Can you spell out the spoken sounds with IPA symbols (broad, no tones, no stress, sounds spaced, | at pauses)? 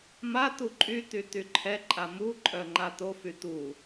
m a t̪ u ǃʼ y t̪ y t̪ y ǃʰ ɛ ǃʼ a m u ǃʼ œ ŋ͡ǃ a t̪ o f y t̪ u